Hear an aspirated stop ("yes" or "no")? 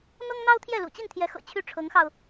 yes